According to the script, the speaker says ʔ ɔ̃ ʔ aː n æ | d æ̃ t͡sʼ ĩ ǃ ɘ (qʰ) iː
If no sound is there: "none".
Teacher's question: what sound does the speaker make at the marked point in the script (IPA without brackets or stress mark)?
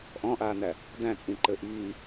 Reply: ʔ